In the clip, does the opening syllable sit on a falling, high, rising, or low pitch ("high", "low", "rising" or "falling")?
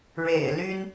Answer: low